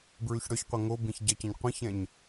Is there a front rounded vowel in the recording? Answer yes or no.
yes